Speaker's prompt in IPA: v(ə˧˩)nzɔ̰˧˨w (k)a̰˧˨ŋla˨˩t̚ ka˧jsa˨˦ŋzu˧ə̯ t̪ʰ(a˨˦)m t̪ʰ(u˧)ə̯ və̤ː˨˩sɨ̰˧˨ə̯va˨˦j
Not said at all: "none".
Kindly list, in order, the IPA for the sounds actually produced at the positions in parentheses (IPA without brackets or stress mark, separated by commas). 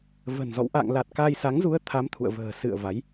ə̤˨˩, ʔ, a˨˦, ṵ˧˨